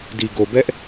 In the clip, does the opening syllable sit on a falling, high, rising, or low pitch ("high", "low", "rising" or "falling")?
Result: low